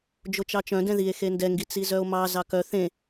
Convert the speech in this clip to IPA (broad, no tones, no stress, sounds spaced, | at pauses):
d͡ʒ o t͡ʃ ɑ t͡ʃ œ̃ d ɛ̃ ð i e̯ x e n d ɛ ŋ ɡ i t͡s i z œ o̯ m ɑ z ɑ k œ θ ẽ